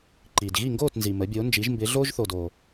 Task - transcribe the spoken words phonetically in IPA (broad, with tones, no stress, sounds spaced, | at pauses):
ǃ iː˩ d ɣ i˥˩ ŋ ɡ oː˥˩ t n z i˩ m ə˩˥ bʲ oː˩˥ n d͡ʒ i˩˥ ʒ m b ɪː˩˥ ɮ oː˥ ʒ θ oː˩ d oː˩